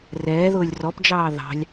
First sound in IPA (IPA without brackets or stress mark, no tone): r